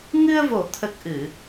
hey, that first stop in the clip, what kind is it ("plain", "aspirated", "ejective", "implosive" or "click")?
aspirated